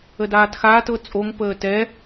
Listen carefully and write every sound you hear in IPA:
ə d aː t x aː t ɤ t͡sʼ o ŋ p əː t ɛ

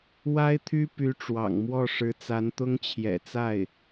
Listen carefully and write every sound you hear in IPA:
w a˥ ɪ̯ t̪ʰ y˥ p y˧˥ ʈ͡ʂ w ɑ̰˨˩ ŋ m w ɔ˥˩ ʂ ɻ̩˧˥ t͡s a˧˥ n t̪ ʊ˥ ŋ t͡ɕʰ j ɛ̰˨˩ t͡s a˥˩ ɪ̯

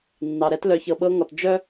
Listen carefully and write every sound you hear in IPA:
nː ɑ˨ ɾ ɛ˧ t l œ˨ ç ɤ˨ ɓ ɤ˧ ŋ ɔ˨ t d͡ʒ œ˦

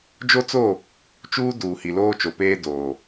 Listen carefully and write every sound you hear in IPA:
d͡ʒ o˦ t͡s o˦˨ | t͡ʃ uː˦ d uː˨ h i˨ l oː˦ t͡ʃ o˨ p eː˦ d oː˨

